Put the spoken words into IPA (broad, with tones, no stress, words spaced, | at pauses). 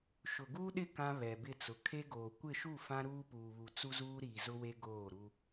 ʃʊ˨ɡuː˦ɗɪ˦˨ kã˦ βɛ˨bɪ˦˨t͡sʊ˨ kʰe˦ɡoː˨ kʷɪ˦˨ʃu˦˨ fã˦ ɾuː˦puː˨βu˨ t͡su˦zuː˦ ɾiː˨zʊ˦we˦ ɡoː˦˨ɾu˦